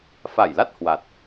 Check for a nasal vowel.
absent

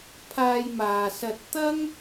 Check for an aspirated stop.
present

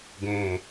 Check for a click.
absent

